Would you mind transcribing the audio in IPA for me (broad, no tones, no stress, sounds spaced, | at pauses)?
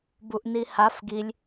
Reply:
b u ʔ n i h a f ɡ i lʲ